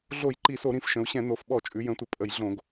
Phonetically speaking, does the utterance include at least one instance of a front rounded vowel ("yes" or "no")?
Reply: no